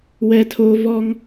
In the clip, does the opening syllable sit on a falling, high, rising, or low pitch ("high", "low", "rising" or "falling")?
high